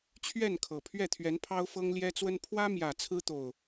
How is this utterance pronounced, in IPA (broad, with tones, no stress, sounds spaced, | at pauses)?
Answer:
t͡ɕʰ ɥ ɛ˥˨ n kʰ ɤ˨˩ pʰ ɥ ɛ˥˨ t̪ʰ ɥ ɛ˨˦ n pʰ ɑ˦ ʊ̯ f ɤ˦ ŋ l j ɛ˦ t͡s w ə˦ n pʰ w ä˦ m j ä˨˩ t͡sʰ ɹ̩˦ t̪ o˨˩ ʊ̯